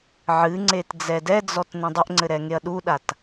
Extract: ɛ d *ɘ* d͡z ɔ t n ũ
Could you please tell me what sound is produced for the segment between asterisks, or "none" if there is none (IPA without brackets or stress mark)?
ɛ